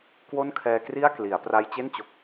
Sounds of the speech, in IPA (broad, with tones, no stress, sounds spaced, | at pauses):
k w o˥˩ n kʰ ɛː˧ k r i˥˩ a̯ k l i˩˦ a̯ p r a˧ j t͡ɕ e˥˩ n t͡ɕ o˨˩ k̚